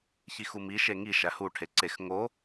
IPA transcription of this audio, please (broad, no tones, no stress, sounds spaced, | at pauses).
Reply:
ç i x u m i ʃ e ŋ i ʃ æ h u ʈʰ e ǀ e x ŋ o